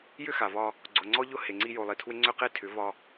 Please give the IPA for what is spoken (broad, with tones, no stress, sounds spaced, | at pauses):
j ʏ˦ x a˨ v ɒ˦ | ɡ͡ǀ ʊ˨ ŋ͡ǀ ɔ˦ ʎ ʊ˦ h e˨ ŋ͡ǀ i˦ j o˨ lˠ i˨ tʰ w ɪ˦ ŋ͡ǀ ʏ˦ q e˦ tʰ ʏ˨˦ v ɒ˦